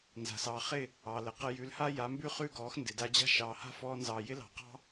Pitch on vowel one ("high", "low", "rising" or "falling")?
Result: low